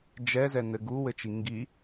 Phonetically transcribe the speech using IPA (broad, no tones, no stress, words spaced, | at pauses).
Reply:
d͡ʒɛzɛnɘ ɡuwɘt͡ʃi ŋɡi